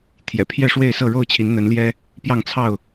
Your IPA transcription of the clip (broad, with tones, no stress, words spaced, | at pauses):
t̪ʰjɛ̰˨˩pʰjɛ˥˨ʂwe˥˨ɪ̯sɤ˥˨ ɻo˥˨ʊ̯t͡ɕʰi˨˦nn̪ə˨˦n ljɛ˦ | pjɑ˥˨ŋt͡sʰɑ˥˨ʊ̯